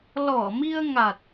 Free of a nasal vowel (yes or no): yes